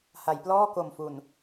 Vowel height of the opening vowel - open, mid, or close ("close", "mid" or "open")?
open